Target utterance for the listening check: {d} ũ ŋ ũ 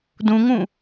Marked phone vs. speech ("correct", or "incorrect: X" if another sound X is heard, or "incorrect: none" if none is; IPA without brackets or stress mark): correct